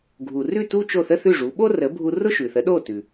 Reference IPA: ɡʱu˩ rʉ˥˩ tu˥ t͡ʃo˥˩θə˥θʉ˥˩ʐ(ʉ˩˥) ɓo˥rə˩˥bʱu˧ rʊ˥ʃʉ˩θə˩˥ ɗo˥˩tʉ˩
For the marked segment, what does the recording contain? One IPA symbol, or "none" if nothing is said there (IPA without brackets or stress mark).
u˩˥